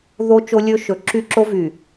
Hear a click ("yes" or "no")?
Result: yes